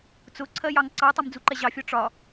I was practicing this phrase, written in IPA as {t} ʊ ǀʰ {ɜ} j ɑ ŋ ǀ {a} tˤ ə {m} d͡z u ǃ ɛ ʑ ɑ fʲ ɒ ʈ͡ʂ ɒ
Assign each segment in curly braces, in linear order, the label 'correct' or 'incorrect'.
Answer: incorrect, correct, incorrect, correct

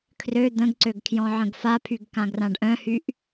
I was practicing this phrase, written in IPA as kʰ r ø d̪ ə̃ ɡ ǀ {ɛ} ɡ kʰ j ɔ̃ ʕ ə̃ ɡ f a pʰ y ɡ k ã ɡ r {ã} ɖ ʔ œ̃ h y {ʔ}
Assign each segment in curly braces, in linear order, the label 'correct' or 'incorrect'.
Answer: incorrect, correct, correct

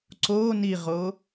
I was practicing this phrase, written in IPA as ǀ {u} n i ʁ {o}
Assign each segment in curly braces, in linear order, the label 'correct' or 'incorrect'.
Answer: incorrect, correct

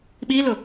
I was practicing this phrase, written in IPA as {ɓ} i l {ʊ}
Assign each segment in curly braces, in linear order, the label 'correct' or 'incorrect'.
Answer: correct, correct

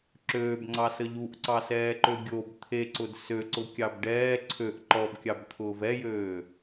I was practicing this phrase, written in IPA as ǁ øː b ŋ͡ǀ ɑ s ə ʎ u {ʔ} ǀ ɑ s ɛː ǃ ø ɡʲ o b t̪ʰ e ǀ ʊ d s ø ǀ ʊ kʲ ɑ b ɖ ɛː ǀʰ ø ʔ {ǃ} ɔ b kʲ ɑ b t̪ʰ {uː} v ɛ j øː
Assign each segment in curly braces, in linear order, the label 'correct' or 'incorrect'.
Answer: correct, correct, incorrect

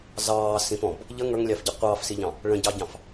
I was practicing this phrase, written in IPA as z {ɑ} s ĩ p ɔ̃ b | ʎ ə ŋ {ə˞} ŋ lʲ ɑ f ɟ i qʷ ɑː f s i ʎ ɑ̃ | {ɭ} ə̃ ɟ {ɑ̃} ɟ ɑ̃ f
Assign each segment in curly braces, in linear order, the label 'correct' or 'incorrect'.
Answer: incorrect, correct, correct, incorrect

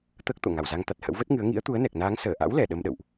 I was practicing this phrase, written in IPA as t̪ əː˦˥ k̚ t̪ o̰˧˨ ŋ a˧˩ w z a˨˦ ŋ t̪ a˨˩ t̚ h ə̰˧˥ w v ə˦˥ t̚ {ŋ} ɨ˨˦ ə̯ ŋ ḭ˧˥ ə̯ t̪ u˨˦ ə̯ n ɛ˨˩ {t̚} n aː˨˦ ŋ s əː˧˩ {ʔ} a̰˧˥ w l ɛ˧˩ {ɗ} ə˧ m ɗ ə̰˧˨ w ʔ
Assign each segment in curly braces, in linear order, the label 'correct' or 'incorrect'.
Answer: correct, incorrect, correct, correct

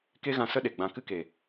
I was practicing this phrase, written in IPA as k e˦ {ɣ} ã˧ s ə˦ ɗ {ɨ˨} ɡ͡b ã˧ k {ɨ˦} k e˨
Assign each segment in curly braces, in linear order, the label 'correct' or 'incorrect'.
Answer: correct, incorrect, correct

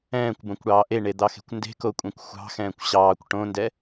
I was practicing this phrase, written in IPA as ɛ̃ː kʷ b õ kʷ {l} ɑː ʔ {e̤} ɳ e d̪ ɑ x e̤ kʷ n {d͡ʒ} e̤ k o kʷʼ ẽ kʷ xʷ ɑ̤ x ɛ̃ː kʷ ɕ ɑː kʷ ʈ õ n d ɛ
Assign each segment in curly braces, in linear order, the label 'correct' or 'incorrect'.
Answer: incorrect, incorrect, incorrect

